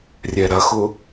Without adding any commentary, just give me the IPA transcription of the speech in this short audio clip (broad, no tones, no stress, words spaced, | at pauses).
rʲɛɾɐxʊ